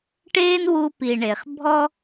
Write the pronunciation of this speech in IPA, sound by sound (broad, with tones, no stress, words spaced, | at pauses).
ʈeː˥n wu˦pi˨ ɳe˩χ bʱɔ˥